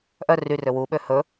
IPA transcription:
ʔ œ r y r ø w u ɓ ø h ɵ

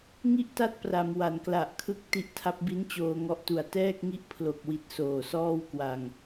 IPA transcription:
ŋ i˥˩ ʔ t a˥˩ t̚ p r a˩˦ m w a˩˦ n k l a˨˩ ʔ kʰ ɯ˥˩ k̚ t i˦˥ ʔ tʰ a˦˥ p̚ b i˦˥ n t͡ɕ oː˧ ŋ ɔ˦˥ ʔ t u˨˩ a̯ t ɛː˥˩ k̚ ŋ i˥˩ ʔ pʰ l o˨˩ k̚ w i˨˩ t̚ s oː˨˩ s ɔː˥˩ w k w a˧ ŋ

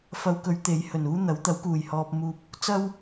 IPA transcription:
f ɐ˧ w k ɵ˨˧ ɥ t̪ e˨˥ j h ɵ˨˩ n uː˥ n̪ ɐ˨˥ w t̪ ɐ˨˥ w k uː˨˩ j h ɔː˨ p̚ m uː˨ p̚ | t͡s ɐ˥ w

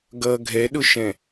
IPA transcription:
ɡ ʌ ɡʱ ɛ ɗ ʊ ʃ ɛ̃

